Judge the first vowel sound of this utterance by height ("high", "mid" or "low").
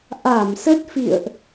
low